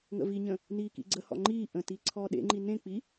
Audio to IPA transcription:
ŋə̰viɲə̃ | niːkḭɡ͡ǀəhɔ̰ ŋ͡ǃiː ʔə̃ti ǀʰɔːɗḛŋ͡ǃi nẽk͡pi

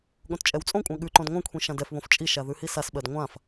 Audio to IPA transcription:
ɠõtt͡ʃʼɛwt͡sʼõkʷʼã ɠʉǃõd ŋʷãkʷʰĩ ʃãdɛfβõf t͡ʃʼiʃa ðʉhisasɓɜd ŋʷãf

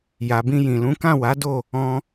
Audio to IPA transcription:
ja˨bĩ˧jĩ˨lũ˨˦ kã˦˨wa˨˦do˦˨ | ɔ̃˧

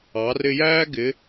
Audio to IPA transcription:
ɑ˩˧rɪ˧jæː˥ ɡɪ˧˥

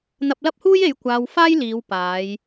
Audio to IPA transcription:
n̪ɐ˧p̚lɐ˥p̚huː˥je˨˧j kʷaː˧wfaː˥jliː˨˧w paː˨˧j

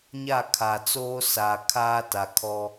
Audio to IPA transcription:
ɲa˦˨ kʰa˨t͡soː˦ sa˨ kʰaː˦ ta˨kʰɔ˦

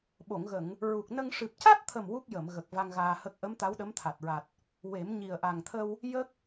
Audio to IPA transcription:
ɓo˨˩˨ŋɣə˨˩˨ŋ | ɹu˨˩k̚nə˧ŋ ʂɨ˨˩p̚ca˦˥t̚t̪ʰə˨˩m wu˦˥k̚ jə˨˩˨mɣə˨˩k̚ va˧ŋɣaː˧hə˦˥k̚ ʔə˧˥m t̪a˧˥wɗə˧˥mt̪ʰa˨˩t̚ɹa˨˩t̚ | we˨˩˦mɲi˨˩ə̯ ʔa˨˩ŋt̪ʰə˧w | jə˦˥k̚

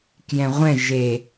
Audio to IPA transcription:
kjɛ̃ʁʷɛ̃ ʒe

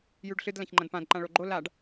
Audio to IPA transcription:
jʉɖɬɨd lãçŋ͡ǃɐ̃dpãd ǃãɭoɡ͡ǃo laɖ

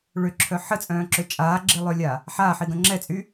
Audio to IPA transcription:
ɭøǁʰœ ħət͡sʼœ̃ːǁø t͡ʃʼaːɡ͡ǁilˠølʲa | ħaːħiɡœ̃ ŋ͡ǁɛt͡sʼy

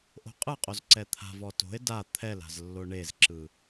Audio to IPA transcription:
ʔo̤qʼɯqʼoz ǀɛt̪ʰa̤vɔ to̤e̯ da t̪ʰɛla̤z lːoɳezǁɯ

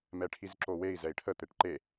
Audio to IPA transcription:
mɛʈʰizǁowei̯ zɛi̯ʈʰə t̪eʈǃe

